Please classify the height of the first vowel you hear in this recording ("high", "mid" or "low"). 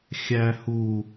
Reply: low